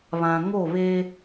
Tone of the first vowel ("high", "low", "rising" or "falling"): low